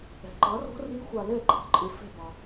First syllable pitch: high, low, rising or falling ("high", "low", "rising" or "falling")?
low